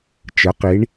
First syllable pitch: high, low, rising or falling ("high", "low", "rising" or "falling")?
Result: rising